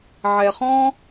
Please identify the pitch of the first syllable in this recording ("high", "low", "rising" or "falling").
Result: low